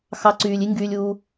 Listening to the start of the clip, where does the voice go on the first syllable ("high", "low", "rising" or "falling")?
rising